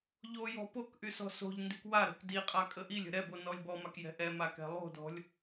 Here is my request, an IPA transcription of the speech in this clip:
ʎ o j ɔ̤ p o k ʔ y s ɔ̤ s o̤ ʎ n d i k w a ɾ o̤ k d i qʼ a kʼ ə ʔ i lʲ ə̤ ɾ ɛ b o n ɔ lʲ b ɔ m a k j ɛ̤ ʔ ɛ m a k ɛ̤ lˠ o̤ d ɔ̤ lʲ

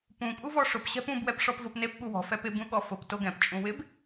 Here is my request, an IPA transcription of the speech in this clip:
p ũ kʼ u v ɔ ʂ ʊ p ɕ ɛ̤ p ũ b w ɛ p ʂ ɔ p v o p n e p ɓ u w ɔ̤ f ɛ p ɪ b ũ ɠ ɔ f ʊ p t o ɡ ɛ̃ p t͡ʃʼ ũ w ɪ b

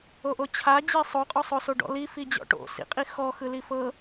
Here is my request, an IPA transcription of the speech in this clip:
o ʔ o t͡ɕʰ a d͡ʑ e sˤ o qʼ ɔ sˤ o s o ɖ ɔ̰ l i f i d͡ʑ ɔ̰ ʈ o̰ s ḭ qʼ i x ɔ x ɯ l i f ɤ

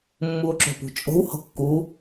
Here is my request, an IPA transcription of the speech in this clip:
mː u o̯ ǁ o̤ p ṳ t͡ʃʼ o̤ w h o̤ kː u

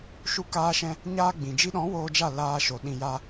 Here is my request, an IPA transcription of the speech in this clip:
ʃ u˧ k aː˦ ʃ ɛ̃˦ | ɲ aː˧ ɡ͡b ĩ˨ d͡ʒ i˧ ɗ ɔ̃˨˦ w oː˧ d͡ʒ a˦˨ l aː˧ ʃ o˨ ɗ ĩ˧ j a˦

